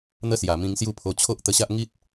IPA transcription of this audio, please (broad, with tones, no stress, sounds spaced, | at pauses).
n̪ ə˦ s j a˨˩ m ĩ˧ ŋ s j u˦ pʰ o˧ t͡ɕʰ o˦ ʔ t̪ ə˧ ɕ a˦ ʔ ŋ i˦ t̚